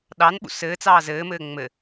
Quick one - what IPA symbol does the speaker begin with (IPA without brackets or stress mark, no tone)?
ɗ